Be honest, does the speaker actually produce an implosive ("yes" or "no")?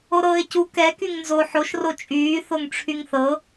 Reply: no